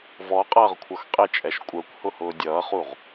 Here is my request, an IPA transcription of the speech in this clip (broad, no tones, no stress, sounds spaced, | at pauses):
v ɔ qʼ ʌː ʁ kʷʰ ʌ x qʼ ɪ t͡ʃʼ ɛ ʃ kʷʼ ə˞ kʷ h ʊ h ʊː dʲ ʌː χ u ʁ